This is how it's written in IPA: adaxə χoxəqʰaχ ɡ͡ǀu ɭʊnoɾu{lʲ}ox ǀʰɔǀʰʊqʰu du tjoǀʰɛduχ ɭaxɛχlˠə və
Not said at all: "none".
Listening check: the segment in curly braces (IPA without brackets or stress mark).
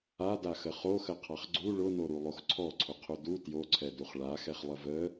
lˠ